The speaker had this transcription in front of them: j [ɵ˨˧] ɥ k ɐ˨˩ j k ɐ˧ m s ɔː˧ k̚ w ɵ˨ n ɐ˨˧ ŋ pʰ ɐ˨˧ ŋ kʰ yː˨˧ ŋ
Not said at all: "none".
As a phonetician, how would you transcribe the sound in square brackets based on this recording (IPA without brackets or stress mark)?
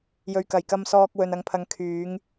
ɵ˨